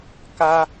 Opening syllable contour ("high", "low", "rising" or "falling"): high